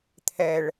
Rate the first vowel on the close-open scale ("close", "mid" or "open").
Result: mid